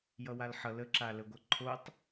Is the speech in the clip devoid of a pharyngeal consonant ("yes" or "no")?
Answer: no